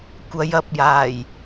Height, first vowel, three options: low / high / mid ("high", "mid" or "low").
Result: low